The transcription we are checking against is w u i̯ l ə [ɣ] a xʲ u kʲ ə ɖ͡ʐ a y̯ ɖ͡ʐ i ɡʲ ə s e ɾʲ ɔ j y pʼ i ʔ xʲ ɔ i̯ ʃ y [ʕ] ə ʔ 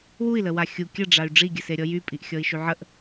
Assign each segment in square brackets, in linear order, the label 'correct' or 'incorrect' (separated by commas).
incorrect, correct